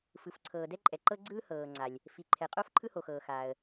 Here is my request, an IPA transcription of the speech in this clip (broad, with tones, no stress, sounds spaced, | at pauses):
f ɯ˩ f ǀʰ ɤː˩ d ɛ˥ ǃʼ ɛ˩ ǃ ɤ˥ ɡ͡ǀ ɯː˥ h ɤː˩ ŋ͡ǀ a˩ lʲ | f i˩ ǃʰ ɛ˩ qʼ o˥ f ǃʰ ɯ˥ h o˩ x ɤː˩ x aː˩ ə̯